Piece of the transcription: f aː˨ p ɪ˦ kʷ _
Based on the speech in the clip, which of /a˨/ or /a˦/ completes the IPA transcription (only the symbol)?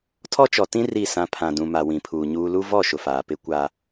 a˦